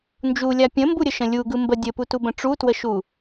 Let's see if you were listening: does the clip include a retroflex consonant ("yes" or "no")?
yes